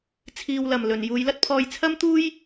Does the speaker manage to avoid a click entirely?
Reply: yes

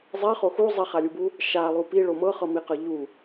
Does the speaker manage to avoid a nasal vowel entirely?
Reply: yes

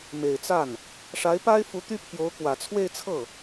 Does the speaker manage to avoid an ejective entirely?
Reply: yes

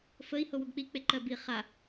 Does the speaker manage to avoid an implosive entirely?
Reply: yes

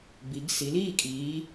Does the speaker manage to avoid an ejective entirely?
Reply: no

